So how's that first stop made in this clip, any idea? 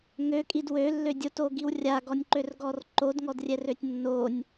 ejective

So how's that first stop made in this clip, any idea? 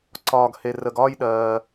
click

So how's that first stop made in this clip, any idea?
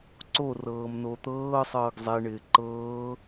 click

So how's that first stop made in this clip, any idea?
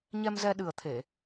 implosive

